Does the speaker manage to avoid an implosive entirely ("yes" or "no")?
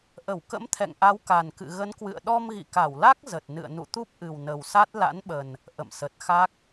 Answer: no